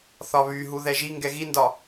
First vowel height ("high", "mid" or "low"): low